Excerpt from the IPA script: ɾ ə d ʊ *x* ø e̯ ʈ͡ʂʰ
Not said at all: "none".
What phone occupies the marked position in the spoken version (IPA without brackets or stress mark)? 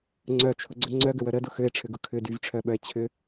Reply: x